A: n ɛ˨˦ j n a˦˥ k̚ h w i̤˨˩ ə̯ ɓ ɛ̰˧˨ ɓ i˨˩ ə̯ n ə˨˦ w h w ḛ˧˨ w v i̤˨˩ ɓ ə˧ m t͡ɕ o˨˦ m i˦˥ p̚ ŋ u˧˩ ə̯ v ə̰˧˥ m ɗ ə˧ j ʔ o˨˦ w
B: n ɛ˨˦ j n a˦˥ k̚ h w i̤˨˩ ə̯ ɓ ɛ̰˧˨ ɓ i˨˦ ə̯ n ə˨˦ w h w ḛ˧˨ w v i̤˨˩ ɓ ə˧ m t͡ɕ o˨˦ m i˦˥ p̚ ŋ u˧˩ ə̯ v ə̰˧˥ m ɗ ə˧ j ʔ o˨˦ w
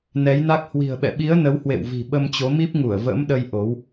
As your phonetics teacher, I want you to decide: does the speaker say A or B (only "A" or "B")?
B